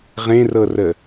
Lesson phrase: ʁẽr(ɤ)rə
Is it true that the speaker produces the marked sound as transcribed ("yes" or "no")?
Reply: yes